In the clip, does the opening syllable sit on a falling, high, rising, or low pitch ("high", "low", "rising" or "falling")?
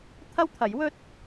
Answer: high